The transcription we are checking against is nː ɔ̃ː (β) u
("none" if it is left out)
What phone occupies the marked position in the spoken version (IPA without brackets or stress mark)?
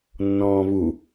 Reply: β